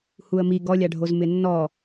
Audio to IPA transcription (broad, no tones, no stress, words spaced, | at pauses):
huə̯mi ɡɔlʲaɖʱoz mɪnːɔ